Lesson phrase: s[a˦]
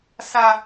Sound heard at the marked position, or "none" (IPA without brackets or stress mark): a˦